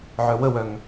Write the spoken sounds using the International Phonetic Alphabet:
ʕœwəwœŋ

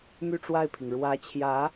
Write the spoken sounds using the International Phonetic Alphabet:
my˥˧ʈ͡ʂwa˥˩ɪ̯pʰi˩ŋ ɻwä˧˥t͡ɕʰjä˧˥

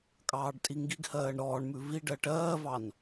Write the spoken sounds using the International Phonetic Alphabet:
kʼɑːɖtʼiŋɡiɡhɜːɳ ɾɔːɳmʉ vi ɖɜʈɜːvɑn

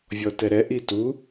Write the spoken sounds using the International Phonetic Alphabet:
vʲɔtɛɾɛ ʔitu

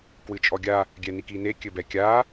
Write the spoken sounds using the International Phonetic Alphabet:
kwɨt͡ʃʼɔɡʲa | ɡʲɛnikine kʲɘbɛkʲa

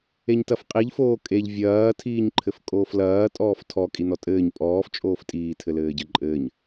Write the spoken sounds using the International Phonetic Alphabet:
eɲtɐfqʼiʎ foːkʼeʎ vʲɐː tʰiːɲǃʰɘfkʼoːflɐː tʼɔːftʰɔ kʼinɔtʼɘːɲ pʼɔːf t͡ʃʼoːftʼiː tʰɘlɘːɟɘǃʼɘːɲ

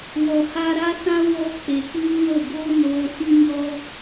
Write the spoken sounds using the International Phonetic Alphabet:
wɔ˨ha˧ɾa˦sã˦ wɔ˦ k͡pe˨kʷiː˦wə˦˨ ɡo˦ noː˦ fĩ˦ɲɔ˦

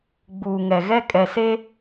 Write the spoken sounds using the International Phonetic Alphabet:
ɡ͡buː˨ŋɛ˨ɣɛ˦ kʼɛ˨seː˦

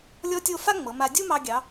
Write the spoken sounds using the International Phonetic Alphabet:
lʲɔ˥tʲo˥˧ fa˥ŋ͡mɤ˩˧ ma˧dʲu˥ mɑ˧ɡʲɑ˩˧

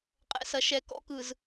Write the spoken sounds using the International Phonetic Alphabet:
qʼɛ̰˨sɐ˨ʃɛ˨ kɔ̰˦kɯ˨z

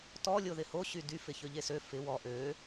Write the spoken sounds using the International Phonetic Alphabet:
tɔ lʲoðɪho ɕydy fɪçøʎesø fɪ wɔ ʔø

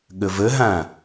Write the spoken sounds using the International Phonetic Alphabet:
ɠəvəɦã

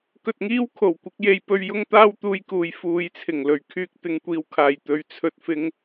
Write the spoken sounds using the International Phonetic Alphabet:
kɵ˧t̚ŋiː˥w kʰo˨˩w kʷɪ˨˥k̚je˧jpɵ˧ɥ jʊ˥ŋt̪aː˥wt̪uː˧jkuː˨j fuː˨jt͡sʰɪ˨˩ŋlɵ˨˩ɥkʰyː˧k̚ t̪ɪ˨ŋkʷiː˨wkʰaː˨˩jt̪ɵ˨ɥ t͡sʰɵ˨t̚fɪ˨˧ŋ

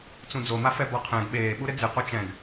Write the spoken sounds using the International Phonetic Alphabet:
t͡sũd͡zomafɛ bɔqʰɛ̃ɡ ɓeːɓuɾɪ d͡zɪqo t͡ʃɛ̃ɡ

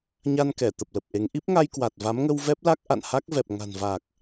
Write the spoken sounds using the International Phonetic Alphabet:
ɲa˧n kɛ˧˩t̪ə˨˩p̚lə˨˩p̚ʔe˨˦ŋ ʔi˦˥p̚ŋa˧jkwa˨˩t̚ va˨˦mŋə˧wvɛ˦˥p̚la˦˥k̚ ʔa̰˧˨n ha˦˥k̚vɛ˨˩p̚ŋa̤˨˩n va˨˩k̚

